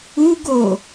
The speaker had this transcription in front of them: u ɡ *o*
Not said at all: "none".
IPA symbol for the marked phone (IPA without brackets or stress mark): o